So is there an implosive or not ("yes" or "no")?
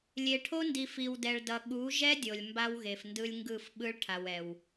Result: yes